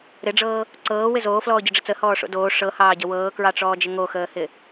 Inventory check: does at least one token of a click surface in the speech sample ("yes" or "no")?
yes